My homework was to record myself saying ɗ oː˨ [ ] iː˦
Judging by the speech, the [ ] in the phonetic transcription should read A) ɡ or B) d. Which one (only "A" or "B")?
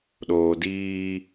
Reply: B